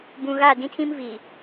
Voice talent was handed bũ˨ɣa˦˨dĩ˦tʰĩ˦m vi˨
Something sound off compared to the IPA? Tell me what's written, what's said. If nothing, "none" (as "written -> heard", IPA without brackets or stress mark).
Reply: none